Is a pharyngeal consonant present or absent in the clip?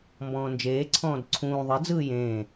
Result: absent